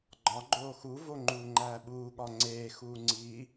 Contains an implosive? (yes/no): yes